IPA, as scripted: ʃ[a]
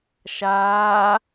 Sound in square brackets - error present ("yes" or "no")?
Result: yes